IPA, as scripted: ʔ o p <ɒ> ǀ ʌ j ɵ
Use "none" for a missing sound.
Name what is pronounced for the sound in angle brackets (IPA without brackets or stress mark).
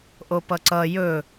ʌ